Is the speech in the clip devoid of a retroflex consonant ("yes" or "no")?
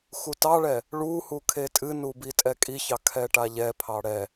no